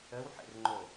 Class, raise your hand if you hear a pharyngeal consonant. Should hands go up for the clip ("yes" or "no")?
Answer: yes